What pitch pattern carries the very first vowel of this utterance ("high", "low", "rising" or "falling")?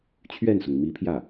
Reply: falling